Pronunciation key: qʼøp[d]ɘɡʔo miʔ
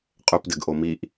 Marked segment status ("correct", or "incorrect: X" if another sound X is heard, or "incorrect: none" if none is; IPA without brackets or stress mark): correct